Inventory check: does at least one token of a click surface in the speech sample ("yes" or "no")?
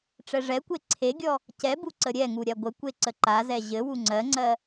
yes